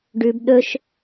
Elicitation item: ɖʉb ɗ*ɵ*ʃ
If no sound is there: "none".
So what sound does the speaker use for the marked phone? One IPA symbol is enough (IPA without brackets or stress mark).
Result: ɵ